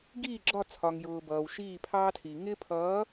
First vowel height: high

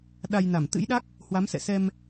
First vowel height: low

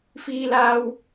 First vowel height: high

